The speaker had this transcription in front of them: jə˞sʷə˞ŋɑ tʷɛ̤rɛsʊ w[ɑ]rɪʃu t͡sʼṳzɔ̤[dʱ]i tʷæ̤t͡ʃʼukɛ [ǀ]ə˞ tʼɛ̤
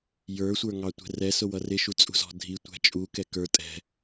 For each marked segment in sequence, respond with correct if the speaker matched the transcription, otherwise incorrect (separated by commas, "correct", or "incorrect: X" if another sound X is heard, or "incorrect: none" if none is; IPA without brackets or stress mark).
incorrect: ʌ, correct, incorrect: k